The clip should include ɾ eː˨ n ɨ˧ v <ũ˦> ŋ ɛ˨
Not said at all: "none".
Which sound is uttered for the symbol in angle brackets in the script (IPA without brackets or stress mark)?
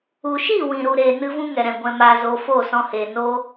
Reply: ũ˦